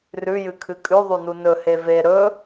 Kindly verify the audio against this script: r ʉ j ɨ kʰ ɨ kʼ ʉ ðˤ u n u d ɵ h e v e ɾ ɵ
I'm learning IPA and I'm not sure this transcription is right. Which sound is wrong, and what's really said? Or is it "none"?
d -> n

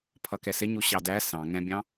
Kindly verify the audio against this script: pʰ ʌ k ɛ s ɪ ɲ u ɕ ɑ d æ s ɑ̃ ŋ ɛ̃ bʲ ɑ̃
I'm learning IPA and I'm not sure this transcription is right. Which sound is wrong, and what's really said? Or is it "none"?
none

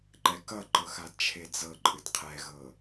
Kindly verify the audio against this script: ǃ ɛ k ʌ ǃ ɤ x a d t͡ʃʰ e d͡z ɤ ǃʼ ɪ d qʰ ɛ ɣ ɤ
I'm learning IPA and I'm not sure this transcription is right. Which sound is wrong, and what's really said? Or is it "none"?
ɪ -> ɨ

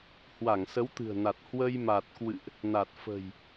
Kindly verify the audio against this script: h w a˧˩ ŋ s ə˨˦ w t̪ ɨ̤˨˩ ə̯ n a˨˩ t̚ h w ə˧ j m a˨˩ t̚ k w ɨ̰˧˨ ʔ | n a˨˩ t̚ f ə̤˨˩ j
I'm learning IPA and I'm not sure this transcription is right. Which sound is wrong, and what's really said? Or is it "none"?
none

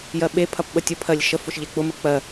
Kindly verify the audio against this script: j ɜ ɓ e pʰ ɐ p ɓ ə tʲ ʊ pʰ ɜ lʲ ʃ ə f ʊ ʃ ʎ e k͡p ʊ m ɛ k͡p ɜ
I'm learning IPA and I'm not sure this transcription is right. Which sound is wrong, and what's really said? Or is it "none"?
ɛ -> ə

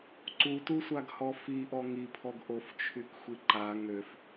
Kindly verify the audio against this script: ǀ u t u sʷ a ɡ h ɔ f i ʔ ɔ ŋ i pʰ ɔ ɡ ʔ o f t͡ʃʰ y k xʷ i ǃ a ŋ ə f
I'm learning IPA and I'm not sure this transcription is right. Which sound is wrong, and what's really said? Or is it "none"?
ə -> ø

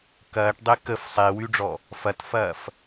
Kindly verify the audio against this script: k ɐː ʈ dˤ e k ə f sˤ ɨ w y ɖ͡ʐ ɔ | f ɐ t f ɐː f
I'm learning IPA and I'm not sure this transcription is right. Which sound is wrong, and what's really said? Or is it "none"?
ɨ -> e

